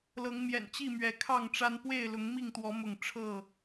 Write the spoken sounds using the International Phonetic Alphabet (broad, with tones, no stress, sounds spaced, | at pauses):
l ɤ˨˦ ŋ m j ɛ̰˨˩ n t͡ɕ i˥˨ m ɥ ɛ˨˦ kʰ ɑ˥˨ ŋ ʈ͡ʂ a˦ n p w e˥˨ ɪ̯ l ʊ˨˦ ŋ m i˥˨ ŋ t̪ w ɔ˨˦ m ʊ˥˨ ŋ ʈ͡ʂʰ ɤ˥˨